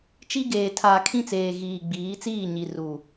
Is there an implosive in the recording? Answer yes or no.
no